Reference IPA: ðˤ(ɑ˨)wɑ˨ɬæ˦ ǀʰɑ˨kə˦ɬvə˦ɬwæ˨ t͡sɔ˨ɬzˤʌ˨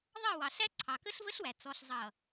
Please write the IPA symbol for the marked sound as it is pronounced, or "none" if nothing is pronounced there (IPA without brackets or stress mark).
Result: ɑ˦˨